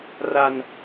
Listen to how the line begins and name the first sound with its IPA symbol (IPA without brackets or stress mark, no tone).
r